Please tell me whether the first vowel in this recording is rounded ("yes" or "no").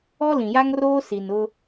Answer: yes